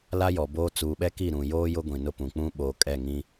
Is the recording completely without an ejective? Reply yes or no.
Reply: no